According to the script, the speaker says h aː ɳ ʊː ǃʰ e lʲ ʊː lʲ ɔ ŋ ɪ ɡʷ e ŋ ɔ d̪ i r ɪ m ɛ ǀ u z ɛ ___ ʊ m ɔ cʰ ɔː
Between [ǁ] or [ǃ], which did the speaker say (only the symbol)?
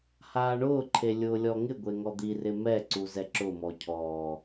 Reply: ǁ